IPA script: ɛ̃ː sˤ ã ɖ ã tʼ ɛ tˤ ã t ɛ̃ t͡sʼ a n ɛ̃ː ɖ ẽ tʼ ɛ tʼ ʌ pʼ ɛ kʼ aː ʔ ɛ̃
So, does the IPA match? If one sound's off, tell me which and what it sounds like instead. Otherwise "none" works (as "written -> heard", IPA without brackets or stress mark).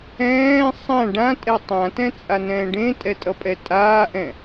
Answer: kʼ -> tʼ